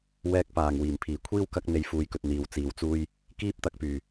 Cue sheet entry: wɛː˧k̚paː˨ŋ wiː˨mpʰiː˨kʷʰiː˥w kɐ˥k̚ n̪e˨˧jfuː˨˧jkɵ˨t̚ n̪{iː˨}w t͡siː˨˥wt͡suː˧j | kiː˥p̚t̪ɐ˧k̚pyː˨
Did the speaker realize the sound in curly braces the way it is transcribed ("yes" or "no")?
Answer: yes